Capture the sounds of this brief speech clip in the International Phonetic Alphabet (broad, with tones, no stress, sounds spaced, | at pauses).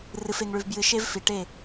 r ɨ˨ f e˨ ŋ ɭ ʉ˨ v b j ɨ˨ ʃ e˦ v f i˨ ʈ e˦˨